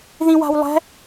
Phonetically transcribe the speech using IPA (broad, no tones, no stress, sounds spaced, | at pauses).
ð ĩ w a̤ w lˠ ɛ̤